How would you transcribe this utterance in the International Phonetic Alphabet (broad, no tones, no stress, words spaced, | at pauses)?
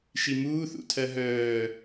ʃimuːθṵtʰɜ ɦœː